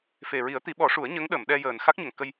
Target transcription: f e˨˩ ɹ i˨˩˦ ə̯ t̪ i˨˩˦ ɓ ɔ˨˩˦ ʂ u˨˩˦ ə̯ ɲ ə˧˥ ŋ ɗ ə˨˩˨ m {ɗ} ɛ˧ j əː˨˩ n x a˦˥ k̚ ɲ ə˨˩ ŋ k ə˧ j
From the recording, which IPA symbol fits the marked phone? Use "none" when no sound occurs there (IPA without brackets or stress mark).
ɗ